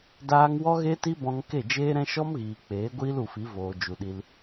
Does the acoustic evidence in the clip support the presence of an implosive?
yes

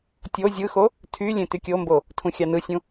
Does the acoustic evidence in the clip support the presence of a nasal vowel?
yes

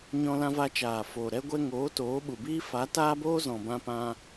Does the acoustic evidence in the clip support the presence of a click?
no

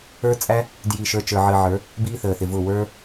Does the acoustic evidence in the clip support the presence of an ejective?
yes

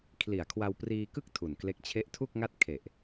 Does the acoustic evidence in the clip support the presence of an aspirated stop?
yes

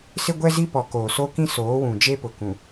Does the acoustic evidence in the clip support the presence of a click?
no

